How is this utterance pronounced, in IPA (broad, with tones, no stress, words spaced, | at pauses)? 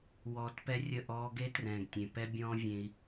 wɔː˧t pɛ˦rʲə˦˨ ʔɔː˦ ɡe˦trɛ̃ː˨ɡ tʲẽ˨ pɛ˦ bʲɔ̃ː˦vʲẽ˧i̯